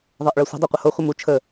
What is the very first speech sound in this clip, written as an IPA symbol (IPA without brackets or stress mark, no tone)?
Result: ðˤ